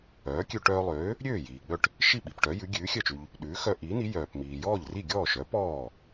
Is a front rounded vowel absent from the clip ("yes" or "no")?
no